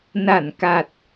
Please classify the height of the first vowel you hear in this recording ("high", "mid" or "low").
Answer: low